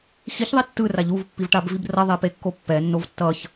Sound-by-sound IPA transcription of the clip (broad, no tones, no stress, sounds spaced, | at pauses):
x i ç ðˤ i tː ɯ r a ʎ u v pː i v ʈ a b v i b r ʌ ðˤ e p e kː o pː ɛ nː o v tː ʌ ç